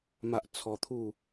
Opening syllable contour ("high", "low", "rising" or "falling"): high